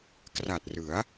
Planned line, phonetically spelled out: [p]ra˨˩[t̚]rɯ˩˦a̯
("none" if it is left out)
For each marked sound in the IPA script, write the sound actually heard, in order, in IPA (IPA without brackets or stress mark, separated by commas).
k, t̚